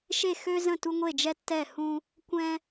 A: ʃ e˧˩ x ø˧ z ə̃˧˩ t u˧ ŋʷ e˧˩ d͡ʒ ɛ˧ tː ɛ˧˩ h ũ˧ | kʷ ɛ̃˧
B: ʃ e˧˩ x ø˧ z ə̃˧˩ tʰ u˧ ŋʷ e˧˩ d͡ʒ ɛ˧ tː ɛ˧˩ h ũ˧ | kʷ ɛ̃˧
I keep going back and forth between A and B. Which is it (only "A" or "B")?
A